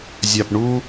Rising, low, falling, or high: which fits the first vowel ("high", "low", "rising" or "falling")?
low